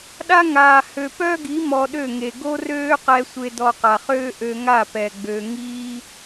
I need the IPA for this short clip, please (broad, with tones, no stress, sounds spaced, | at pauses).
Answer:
ɗ a˦ ŋ aː˨ h ø˨ p œ˦ ɡ i˨˦ m ɔ˧ ɗ ø˦˨ ŋ e˨ ɡ o˦ r øː˦ q ɛ˧ sʷ e˧ d ɔ˧ q a˨ χ øː˦ ʔ ø˧ ŋ a˦˨ p ɛ˨ ɡ͡b ø˧ ŋ iː˦